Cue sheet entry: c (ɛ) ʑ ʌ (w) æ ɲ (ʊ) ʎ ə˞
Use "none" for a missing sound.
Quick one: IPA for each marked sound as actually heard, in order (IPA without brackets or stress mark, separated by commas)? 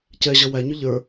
ɛ, w, ʊ